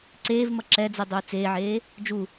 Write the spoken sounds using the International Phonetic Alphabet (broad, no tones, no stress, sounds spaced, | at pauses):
ǀ eː v m ʌ ǁ ɛ d͡z ɯ dˤ uː t͡s eː ʕ eː | d͡ʒ u